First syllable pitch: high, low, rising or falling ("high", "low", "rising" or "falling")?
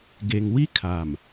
low